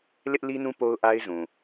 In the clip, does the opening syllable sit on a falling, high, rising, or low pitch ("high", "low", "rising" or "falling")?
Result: high